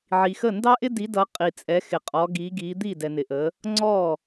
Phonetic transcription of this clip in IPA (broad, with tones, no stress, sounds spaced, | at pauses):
ʕ i˨ x ə˥˩ n d ɑ˥ ʔ ɪ˥ d i˨˦ d ʌ˨˦ qʼ i˨ t͡sʼ ɛ˨˦ x ɪ˨ qʼ ɔ˨˦ ɡ i˨˦ ɡ i˨˦ d̪ i˥˩ d ɛ˨ n ɪ˨ ʔ ə˨˦ | ŋ͡ǀ ɔ˥˩